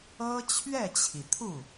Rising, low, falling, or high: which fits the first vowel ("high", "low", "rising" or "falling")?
high